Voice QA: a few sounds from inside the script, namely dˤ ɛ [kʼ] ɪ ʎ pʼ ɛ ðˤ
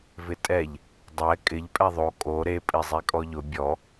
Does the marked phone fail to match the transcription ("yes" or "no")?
no